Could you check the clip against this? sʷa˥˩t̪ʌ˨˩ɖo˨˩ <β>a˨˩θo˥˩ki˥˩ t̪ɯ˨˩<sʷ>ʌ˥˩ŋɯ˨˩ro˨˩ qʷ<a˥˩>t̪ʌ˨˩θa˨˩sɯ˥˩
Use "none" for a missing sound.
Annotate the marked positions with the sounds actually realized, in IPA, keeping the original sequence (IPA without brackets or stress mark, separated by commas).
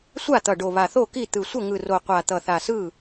β, sʷ, a˨˩